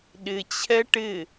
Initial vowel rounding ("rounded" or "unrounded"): unrounded